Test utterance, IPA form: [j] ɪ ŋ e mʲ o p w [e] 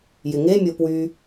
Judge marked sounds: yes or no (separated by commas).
yes, no